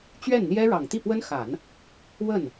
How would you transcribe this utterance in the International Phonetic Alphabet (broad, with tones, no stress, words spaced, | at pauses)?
t͡ɕɥɛ˥˩n n̪jɛ˥ ɻɑ˨˩ŋt̪i˥˩pwə˥n xa˨˩˦n | wə˥˩n